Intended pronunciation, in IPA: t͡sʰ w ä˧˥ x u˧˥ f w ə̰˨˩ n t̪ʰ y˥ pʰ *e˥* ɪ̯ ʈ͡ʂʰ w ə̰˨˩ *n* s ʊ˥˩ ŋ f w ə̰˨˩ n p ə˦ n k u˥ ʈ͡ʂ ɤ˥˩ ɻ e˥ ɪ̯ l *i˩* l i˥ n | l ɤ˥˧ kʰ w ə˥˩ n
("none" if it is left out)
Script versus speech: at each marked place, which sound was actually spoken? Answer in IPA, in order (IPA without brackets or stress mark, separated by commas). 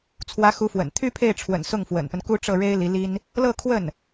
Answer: e˥˩, n, i˧˥